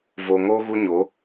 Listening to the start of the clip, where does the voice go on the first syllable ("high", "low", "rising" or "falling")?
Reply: low